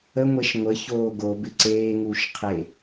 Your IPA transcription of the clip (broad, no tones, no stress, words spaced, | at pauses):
əŋʷeʃ ŋʷə çoːɡo bɪǀeːŋuːʃ qʰe